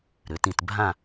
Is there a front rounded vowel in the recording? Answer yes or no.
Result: yes